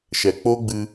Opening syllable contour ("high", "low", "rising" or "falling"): low